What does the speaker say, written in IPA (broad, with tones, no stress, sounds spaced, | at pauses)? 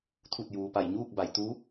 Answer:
t̪ʰ u˧˩ t̚ j uː˩ p a˧˩ j ɲ uː˥˨ k̚ b a˩˧ j t̪ u˧˥